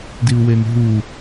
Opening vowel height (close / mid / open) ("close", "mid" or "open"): close